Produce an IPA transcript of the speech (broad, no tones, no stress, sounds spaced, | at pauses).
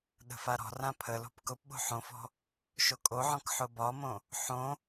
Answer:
ɗ ə̤ f a ɾ ɔ̤ r ã pʰ ə l o̤ p k ʊ p ɓ o̤ ħ õ f ɔ̤ | ʃ o kʼ o ʕ ɔ̃ k ħ ʊ b ɒ m õ | ħ õ